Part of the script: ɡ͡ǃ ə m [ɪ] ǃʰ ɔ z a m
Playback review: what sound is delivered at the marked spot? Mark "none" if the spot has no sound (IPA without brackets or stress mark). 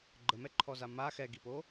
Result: ɛ